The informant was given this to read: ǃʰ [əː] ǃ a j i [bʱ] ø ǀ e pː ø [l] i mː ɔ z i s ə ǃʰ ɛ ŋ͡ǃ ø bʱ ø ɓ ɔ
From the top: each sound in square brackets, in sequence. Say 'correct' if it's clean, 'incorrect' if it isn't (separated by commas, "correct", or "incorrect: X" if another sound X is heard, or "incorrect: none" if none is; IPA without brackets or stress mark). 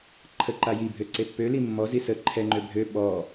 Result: incorrect: ə, correct, correct